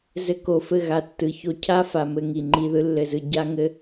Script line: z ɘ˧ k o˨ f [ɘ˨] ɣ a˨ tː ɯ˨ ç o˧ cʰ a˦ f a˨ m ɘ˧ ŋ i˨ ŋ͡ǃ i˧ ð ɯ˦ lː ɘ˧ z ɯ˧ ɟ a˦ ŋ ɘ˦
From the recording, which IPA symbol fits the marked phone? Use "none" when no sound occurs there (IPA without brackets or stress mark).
ɘ˦˨